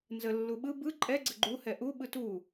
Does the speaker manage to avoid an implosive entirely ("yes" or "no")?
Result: no